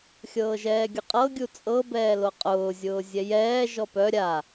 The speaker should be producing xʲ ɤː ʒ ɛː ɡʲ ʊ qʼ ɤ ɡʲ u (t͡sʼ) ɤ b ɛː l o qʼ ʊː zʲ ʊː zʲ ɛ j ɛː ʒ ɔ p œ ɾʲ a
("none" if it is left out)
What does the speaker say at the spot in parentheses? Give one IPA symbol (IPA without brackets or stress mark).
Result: t͡sʼ